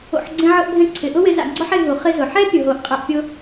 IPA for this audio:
o̰˧ ħ ɡ͡ǀ ẽ˥ ʕ ʊ˥ ʔ bʱ ɛ̃˥ ǀʰ ɪ˩ ʔ ʊ˥ w ɪ˧ z a̰˧ ɡ͡ǀ ɔ˥ ħ e˧ ɦ u˩ χ ɪ˧ z ʊ˩ ħ ɛ˥ pʲ ʊ˩ ɦ o˩ ʔ qʼ e˧ ʔ pʲ ʊ˥

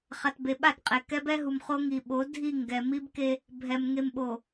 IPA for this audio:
χ a˨ t b e˨ ɓ a˦˨ t qʼ e˨ k ɛ˦ b ɛ˦ ɦ u˨ m χ o˦ ŋ i˨ ɓ o˨˦ dʱ i˦˨ ŋ ɡ ɛ˨ m i˦ b k e˦ | bʱ ɛ˨ m ŋ e˨ m ɓ o˨

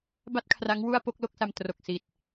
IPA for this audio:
b a˥˩ t̚ kʰ r a˦˥ ŋ w u˥˩ a̯ p o˥˩ k̚ l o˥˩ k̚ s a˧ m t r o˨˩ k̚ s i˨˩ t̚

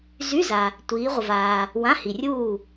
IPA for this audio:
z y˧˥˧ z a˨ | tʷ iː˨˦ ʁʷ ə˨ v aː˨ | w ã˧˥˧ h i˨ rʲ uː˥˨

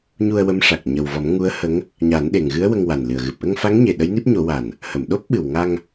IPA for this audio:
ɲ u˧ ə̯ w ə˧˥ m ʂ a˨˩ k̚ ɲ ə˨˩ w v ɔ˨˩˦ m ŋ u˧˥ ə̯ h ə˧˥ ŋ | ɲ a˨˩˦ n ɗ e˨˩ ŋ ɣ ɨ˧˥ ə̯ w ə˧ ŋ w a˨˩ n l ɨ˨˩ ə̯ ɣ ɨ˨˩ p̚ ʔ ə˧ ŋ f a˧˥ ŋ ɲ e˨˩ ɗ ə˧˥ j n i˦˥ p̚ ɲ o˨˩˦ w a˨˩ n | h ə˨˩˨ m ɗ o˦˥ p̚ ɓ ɨ˨˩ w ŋ a˧ ŋ

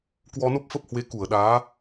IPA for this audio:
k w ɔ˧ n o˦˥ p̚ f ə˦˥ p̚ h w e˨˦ k u˧˩ ə̯ ɗ aː˨˦

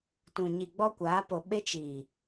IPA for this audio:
t ũ˨ ɲ i˨ ɡ͡b ɔ˧ kʷ aː˨˦ p o˨ ɓ e˦ t͡ʃ iː˨

